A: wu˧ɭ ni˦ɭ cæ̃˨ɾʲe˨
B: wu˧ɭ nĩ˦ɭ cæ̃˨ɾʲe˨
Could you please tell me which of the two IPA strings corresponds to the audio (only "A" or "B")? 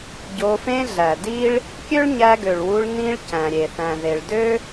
B